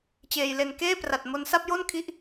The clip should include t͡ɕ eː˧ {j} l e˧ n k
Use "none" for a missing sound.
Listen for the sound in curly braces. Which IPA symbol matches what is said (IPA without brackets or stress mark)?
j